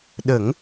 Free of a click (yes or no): yes